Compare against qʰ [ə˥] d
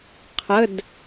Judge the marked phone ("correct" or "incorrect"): incorrect